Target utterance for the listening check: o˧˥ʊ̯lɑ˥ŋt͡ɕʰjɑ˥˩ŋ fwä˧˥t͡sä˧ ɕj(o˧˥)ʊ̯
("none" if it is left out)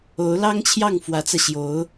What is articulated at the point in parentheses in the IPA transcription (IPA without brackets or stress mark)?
o˧˥